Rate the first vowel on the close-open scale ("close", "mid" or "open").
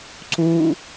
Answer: close